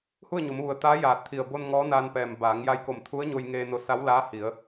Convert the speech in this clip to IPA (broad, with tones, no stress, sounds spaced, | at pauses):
h u˥˨ ə̯ ɲ o˩˧ m ʋ u˩ ə̯ t̪ aː˧˥ j aː˧˩ t̚ t̪ʰ i˧˩ ə̯ b o˧ n ŋ ɔː˧˥ n aː˧ n p ɛː˩ m b aː˩˧ ŋ j a˧ j k o˧˩ m t̪ʰ u˧˥ ə̯ ɲ o˧ j ŋ eː˧ n o˧ s a˧˥ w l aː˧˥ h i˩˧ ə̯